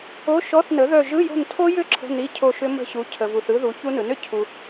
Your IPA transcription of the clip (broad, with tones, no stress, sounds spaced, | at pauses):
o˧˥˧ ʃ ɔ˧˥˧ θ n ə˩˥ ð œ˦˨ ʒ ɯ˧˥˧ j o̤˦˨ n tʰ o˦˥ j ʏ˦˥ ǁʰ ə̤˧˥˧ n i˧˥˧ cʰ o˦˨ ʃ ʏ˦˥ m ə̤˦˨ ɕ u˩˥ cʰ ə˨ v u˨ θ ɯ˦˥ ð u˩˥ ç u˦˥ n ɯ˩˥ n ʏ˩˥ cʰ u˨